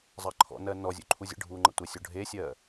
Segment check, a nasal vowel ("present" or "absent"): absent